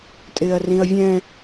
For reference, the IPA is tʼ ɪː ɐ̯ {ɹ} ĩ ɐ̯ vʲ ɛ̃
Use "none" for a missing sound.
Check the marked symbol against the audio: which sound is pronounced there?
r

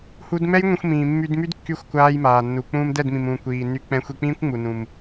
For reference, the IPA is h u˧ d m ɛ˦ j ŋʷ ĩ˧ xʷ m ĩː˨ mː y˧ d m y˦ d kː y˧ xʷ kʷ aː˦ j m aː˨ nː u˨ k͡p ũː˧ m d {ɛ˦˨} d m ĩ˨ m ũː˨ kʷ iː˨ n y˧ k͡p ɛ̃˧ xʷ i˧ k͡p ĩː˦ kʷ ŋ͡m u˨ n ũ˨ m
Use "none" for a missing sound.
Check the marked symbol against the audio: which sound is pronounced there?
ɛ˦˨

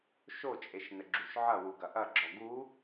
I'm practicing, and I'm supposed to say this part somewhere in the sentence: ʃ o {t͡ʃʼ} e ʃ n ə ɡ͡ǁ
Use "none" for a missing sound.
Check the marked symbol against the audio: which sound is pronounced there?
t͡ʃʼ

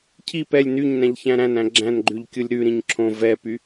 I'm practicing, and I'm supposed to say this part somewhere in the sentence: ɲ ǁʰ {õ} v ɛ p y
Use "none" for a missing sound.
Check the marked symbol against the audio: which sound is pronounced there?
õ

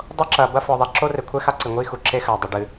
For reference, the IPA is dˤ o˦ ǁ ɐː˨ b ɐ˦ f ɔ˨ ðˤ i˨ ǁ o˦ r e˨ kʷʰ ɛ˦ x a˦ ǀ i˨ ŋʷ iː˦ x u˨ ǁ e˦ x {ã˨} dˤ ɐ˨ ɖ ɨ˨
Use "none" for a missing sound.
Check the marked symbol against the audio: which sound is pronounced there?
a˨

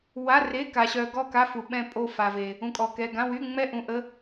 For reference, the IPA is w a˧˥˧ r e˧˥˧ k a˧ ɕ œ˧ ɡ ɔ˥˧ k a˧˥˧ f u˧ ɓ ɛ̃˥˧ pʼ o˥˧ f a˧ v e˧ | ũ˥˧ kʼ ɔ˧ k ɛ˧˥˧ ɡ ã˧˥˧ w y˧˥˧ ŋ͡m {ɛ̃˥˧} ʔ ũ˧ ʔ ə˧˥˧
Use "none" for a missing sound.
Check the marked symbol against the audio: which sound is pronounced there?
ɛ˥˧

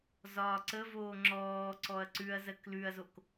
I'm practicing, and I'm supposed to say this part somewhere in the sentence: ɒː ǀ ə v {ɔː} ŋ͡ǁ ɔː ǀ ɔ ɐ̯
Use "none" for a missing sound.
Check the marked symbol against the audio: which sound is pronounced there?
oː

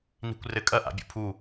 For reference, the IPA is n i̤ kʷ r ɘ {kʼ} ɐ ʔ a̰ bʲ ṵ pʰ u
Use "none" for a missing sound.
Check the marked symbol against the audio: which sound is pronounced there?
kʼ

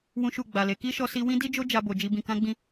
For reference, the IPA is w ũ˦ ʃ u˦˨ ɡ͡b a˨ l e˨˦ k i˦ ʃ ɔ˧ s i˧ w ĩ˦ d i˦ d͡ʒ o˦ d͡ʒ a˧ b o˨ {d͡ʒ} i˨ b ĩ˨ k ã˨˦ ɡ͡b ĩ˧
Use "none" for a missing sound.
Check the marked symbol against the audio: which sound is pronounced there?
d͡ʒ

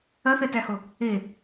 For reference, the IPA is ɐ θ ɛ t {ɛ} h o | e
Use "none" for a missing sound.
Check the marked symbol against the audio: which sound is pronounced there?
æ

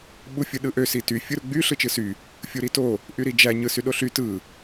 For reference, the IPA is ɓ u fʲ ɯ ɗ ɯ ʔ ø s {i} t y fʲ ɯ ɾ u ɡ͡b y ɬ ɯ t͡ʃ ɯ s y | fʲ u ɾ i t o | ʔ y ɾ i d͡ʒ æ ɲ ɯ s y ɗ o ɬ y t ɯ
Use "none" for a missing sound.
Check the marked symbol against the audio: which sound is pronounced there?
i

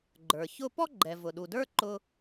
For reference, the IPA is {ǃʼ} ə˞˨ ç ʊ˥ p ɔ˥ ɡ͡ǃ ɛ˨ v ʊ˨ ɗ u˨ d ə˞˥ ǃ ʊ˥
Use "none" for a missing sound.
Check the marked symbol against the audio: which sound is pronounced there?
ɡ͡ǃ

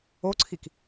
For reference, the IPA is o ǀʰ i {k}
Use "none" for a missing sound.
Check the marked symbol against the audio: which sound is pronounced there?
k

